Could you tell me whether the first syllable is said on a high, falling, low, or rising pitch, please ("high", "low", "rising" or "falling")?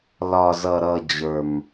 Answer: high